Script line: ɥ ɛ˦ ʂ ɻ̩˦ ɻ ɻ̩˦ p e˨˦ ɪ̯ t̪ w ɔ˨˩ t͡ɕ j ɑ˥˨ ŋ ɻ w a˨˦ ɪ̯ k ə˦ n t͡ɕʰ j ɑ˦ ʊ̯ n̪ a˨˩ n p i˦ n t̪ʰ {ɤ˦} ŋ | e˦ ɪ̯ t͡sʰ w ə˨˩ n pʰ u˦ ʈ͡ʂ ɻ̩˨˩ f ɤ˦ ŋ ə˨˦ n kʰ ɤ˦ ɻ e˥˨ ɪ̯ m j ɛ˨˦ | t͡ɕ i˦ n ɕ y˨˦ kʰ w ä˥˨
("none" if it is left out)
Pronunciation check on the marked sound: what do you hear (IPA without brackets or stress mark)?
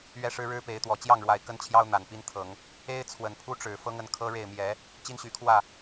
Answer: ɤ˨˦